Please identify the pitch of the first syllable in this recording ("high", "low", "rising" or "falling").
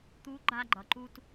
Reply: rising